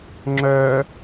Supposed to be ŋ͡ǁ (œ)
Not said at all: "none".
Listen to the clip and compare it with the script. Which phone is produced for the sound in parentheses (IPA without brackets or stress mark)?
œ